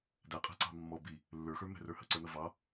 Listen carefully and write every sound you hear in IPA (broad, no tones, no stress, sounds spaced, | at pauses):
d æ qʼ æ̤ ǀ ɑ̤ mː ɔ b i | lː ə˞ x ə˞ m ɛ̤ r ə˞ h ə ǀ ə˞ n ʌ v ɑ